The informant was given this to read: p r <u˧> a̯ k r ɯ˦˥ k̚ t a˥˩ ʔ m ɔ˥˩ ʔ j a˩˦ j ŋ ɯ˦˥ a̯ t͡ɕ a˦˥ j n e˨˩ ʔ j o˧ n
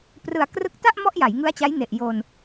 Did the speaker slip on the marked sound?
yes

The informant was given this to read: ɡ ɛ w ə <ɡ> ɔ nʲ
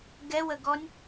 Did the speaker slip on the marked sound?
no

